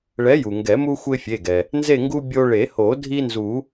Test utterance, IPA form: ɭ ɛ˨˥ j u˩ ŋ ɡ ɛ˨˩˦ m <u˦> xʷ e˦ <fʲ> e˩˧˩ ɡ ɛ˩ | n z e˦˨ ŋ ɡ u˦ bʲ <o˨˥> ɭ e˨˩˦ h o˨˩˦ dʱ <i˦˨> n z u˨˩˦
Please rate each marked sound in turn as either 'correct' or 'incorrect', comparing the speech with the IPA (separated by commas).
correct, correct, incorrect, incorrect